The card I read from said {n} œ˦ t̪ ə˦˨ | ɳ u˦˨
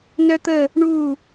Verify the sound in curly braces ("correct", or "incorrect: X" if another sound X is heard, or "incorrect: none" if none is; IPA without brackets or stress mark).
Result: correct